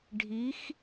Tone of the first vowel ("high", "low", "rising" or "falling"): rising